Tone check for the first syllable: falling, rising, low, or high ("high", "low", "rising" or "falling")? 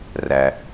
low